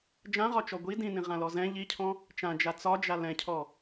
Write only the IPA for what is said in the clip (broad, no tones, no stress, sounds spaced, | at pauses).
d͡ʒ ã ʁ ɒ t͡ʃ ɔ ɡʷ i d ĩ n ĩ ʁ ã l ɔ z ɛ̃ ʎ i cʰ ɔ̃ | t͡ʃ ã d͡ʒ a t͡s ɒ d͡ʒ a l ɛ̃ cʰ ɔ